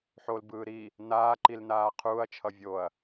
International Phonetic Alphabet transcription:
ħolbɯː ɾi | naː ǃilnaː qʰuːɐ̯t͡ʃʰʌ vʲoɐ̯

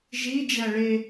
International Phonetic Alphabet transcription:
ʒi d͡ʒæɭe

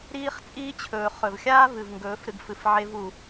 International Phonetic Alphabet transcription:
ɾiː˦χt͡sʼiː˦t͡ɕʰɵː˨ χɵ˨vxʲaː˦vɨ˨vŋɡɵː˨˦f ɾɨ˧ɡfɨ˨fʕe˦vu˨

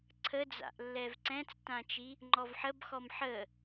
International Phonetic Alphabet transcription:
ǀʰəd͡za̰ʔ lːɛvǀɛ̃t͡stãt͡ʃi | ŋ͡ǃɔvħəbxɔm ħə

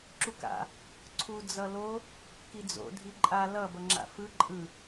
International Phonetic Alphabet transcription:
ǁuka̰ | ǀʰu d͡zʌlo | kid͡zo̰ dʱiǃʼa lʌ bʌŋ͡ǁa̰fɯ ǃʼɯ

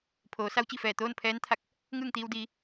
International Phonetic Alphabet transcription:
pʰoː˩˧sa˧˥wt͡ɕi˧˩fɛː˧˩ t̪oː˥˨npʰɛː˧˥nt̪ʰa˧˩k̚ | ŋɯː˥˨ŋt̪iː˧w diː˩˧

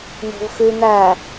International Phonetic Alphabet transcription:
n̪o̤vxʉ n̪æ

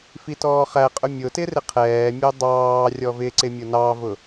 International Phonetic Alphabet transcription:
fitɔːχæqʼʊ mʲʊtɪ rɪqʰɛːmʲʊ dˤɑː rʲɔvɪǀɪ mʲʊnɑvʊ

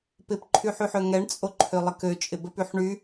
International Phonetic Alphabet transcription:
pɪpǃʰyħyħø ŋɛɳt͡sʼo ǃʰølˠəkø t͡ʃʼɪbəp yħɳy

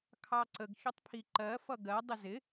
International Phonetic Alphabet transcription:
kʰɑǀəɡ çʊtˤpʰiǃɜ fʌɡɜ dˤɪzɪ

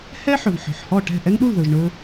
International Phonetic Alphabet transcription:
hɛ˥ħɵ˩v ħɔ̤˩ħhɔ˥˩ʈɛ̤˥˩ ʔɛ˥ŋɗu˥˩l ðɵ˩ʒɳɵ˧

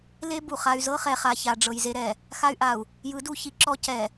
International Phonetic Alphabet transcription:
le˦ bu˨χa˦y̯ zɤ˦χɛ˨χa˨ ça˨ɖ͡ʐɤ˨j ze˦ɾɛ˨ | xa˦y̯ʔa˨u̯ | jɯ˨˦du˨ çi˦ǁɔ˦ cɛ˨

